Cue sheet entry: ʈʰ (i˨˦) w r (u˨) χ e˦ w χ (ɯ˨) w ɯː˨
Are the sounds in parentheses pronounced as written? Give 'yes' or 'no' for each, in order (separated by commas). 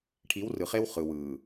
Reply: yes, no, yes